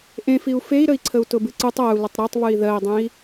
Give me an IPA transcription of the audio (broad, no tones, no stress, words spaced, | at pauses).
ʔẽfiu̯ fei̯ɾəi̯ǀʰəu̯ tʊbɨǀɨtˤ ɜu̯lʊtˤ ɾɜtˤβɨi̯ ðɜi̯dˤẽi̯